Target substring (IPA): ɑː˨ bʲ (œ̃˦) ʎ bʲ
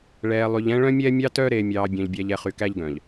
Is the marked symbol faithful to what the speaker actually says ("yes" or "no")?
no